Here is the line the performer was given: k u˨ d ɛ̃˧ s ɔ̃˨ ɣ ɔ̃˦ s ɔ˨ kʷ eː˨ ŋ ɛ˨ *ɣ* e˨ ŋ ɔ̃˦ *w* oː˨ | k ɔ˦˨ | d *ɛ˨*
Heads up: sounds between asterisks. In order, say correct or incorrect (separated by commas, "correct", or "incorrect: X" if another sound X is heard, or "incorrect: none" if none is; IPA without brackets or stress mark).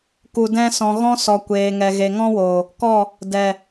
correct, correct, correct